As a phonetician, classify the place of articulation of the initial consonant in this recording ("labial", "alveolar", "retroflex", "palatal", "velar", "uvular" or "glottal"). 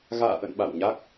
velar